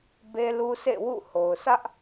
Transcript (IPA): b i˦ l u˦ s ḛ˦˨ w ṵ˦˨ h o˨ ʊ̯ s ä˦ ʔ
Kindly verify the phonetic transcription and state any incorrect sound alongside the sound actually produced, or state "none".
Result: i˦ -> e˦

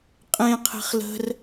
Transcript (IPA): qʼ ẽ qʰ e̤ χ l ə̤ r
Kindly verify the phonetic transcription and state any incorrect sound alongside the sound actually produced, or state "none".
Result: none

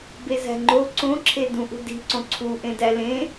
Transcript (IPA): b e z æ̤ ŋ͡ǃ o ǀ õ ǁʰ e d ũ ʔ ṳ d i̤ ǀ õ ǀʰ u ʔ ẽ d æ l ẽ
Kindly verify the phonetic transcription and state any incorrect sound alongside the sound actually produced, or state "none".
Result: none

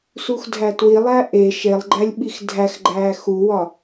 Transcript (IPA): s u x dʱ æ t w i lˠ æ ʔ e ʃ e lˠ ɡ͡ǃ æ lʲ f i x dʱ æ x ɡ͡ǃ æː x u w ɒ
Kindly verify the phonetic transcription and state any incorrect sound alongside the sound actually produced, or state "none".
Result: f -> ɓ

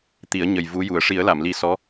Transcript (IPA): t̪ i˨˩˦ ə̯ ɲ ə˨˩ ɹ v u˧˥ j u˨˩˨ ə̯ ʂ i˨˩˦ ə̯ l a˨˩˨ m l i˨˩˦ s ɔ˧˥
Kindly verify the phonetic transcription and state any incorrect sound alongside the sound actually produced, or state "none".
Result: ɹ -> j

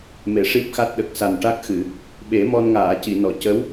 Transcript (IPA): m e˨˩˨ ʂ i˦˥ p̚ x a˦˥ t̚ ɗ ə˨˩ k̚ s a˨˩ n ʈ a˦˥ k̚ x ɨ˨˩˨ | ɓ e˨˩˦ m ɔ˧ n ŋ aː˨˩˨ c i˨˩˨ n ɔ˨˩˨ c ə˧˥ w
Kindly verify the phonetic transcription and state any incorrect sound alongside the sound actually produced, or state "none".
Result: none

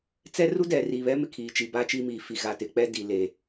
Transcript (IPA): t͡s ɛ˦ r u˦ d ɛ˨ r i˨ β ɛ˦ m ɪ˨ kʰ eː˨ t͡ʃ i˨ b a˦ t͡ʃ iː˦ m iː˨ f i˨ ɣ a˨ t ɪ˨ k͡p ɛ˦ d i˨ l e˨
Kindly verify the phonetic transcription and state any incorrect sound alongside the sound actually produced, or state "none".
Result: eː˨ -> iː˨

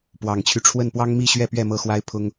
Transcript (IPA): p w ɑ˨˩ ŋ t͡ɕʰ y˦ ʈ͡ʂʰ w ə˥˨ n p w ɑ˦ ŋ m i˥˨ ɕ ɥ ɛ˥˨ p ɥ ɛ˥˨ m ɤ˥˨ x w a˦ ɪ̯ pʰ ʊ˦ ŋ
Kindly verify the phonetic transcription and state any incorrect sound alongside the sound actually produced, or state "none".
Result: none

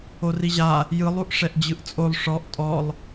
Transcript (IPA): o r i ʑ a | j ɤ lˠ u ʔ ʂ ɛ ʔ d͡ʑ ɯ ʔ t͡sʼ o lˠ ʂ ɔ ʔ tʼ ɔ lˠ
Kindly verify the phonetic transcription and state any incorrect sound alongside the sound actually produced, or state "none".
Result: ɤ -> ɯ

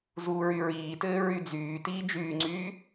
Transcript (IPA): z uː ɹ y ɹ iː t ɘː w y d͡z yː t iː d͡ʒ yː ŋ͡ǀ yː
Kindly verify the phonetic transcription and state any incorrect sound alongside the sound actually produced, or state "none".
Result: w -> ɹ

